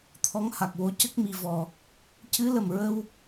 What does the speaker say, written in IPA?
t̪ʰɔ˧˥ŋha˨˩k̚wo˧˥ cə˦˥k̚mi˨˩vɔ˨˩ | cɨ˧˥lə˨˩mɹə˧w

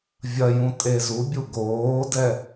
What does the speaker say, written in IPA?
vʲɐjũ tʼezubʲu ɡoːdɛ

